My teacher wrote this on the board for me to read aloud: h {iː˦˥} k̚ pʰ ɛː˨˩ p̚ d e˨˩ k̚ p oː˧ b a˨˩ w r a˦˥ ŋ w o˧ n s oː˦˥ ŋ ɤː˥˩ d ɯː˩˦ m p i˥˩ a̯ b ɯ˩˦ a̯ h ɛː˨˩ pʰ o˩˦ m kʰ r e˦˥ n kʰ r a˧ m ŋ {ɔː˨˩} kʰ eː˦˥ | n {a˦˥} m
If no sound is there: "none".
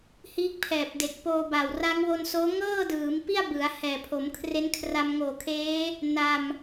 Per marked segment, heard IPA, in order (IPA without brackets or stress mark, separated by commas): iː˦˥, oː˨˩, a˧